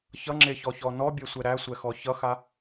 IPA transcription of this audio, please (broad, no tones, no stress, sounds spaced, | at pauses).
ç ʌ ŋ͡ǁ e ç ɔ ç ɔ n ɔ bʲ ɛ sʷ ɛ ɾ æ sʷ ɛ x ɔ ç ʌ x a